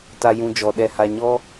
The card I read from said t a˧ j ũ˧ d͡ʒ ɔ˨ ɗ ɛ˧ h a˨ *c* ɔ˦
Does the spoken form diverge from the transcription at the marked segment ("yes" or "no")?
yes